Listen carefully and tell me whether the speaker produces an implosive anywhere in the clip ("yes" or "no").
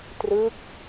no